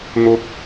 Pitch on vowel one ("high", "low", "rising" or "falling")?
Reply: rising